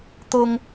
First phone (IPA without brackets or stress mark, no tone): t̪